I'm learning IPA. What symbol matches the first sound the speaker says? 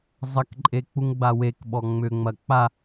zˤ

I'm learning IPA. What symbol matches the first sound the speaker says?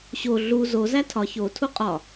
ɕ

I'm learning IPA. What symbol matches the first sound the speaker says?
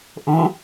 ʔ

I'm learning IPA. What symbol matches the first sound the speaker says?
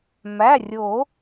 m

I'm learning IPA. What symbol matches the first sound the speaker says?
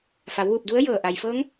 f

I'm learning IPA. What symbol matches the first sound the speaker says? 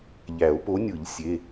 ʎ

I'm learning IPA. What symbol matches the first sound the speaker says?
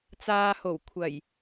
t͡s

